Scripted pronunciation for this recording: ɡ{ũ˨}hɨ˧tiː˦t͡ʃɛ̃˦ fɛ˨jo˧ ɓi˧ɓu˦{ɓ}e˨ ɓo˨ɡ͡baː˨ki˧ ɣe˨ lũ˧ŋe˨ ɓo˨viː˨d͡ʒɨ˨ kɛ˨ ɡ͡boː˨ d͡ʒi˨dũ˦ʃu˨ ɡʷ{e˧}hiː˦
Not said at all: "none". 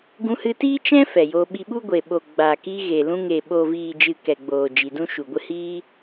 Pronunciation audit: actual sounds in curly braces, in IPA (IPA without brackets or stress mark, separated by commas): ũ˧, ɡʷ, ɨ˧